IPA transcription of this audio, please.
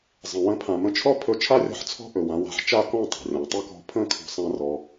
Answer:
zˤ ə̃˨ w ə̃˧ pʰ ã˨ m ə̃˧ t͡ʃʰ ɔ˦ pʰ ɵ˧ t͡ʃʰ a˦ rʲ ɔ̤˧ ħ t͡sʰ ɔ̤˦ ʔ ɵ˨ w ã˧ w a̤˨ ħ t͡ʃ a˦˨ k ɔ̃˦˨ tˤ a̤˨ rʲ ɔ̃˨ tˤ ə˦˨ k ɔ̤˧ pʰ ə̃˦˨ kʰ ɔ̤˦ sˤ ã˦ r ɔ˧

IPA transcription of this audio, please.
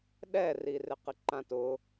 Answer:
ɗ ɛ r i r ɪ q ɪ ǃ ã t ʊ

